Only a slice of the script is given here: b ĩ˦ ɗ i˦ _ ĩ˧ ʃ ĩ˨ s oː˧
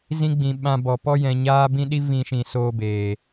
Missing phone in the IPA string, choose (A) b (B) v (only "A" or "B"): B